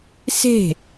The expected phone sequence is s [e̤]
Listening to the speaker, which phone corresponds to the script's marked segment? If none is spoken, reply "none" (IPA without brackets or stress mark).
e̤